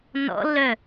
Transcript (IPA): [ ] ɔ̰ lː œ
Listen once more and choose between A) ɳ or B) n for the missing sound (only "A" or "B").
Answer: B